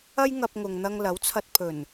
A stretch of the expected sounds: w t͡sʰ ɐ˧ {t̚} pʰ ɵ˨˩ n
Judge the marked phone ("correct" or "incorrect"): correct